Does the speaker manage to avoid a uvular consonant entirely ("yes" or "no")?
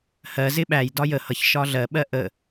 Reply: yes